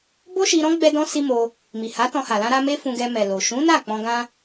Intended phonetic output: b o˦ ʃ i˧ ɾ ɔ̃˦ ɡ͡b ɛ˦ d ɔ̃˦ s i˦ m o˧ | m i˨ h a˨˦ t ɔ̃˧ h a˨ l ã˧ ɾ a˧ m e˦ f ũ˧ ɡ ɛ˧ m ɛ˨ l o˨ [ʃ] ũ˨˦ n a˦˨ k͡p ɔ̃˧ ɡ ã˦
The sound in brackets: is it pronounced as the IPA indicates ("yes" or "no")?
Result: yes